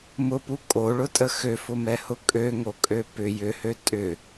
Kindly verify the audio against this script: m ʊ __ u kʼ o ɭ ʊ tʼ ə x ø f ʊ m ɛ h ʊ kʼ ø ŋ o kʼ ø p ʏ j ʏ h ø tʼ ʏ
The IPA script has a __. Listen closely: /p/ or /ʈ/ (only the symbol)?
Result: p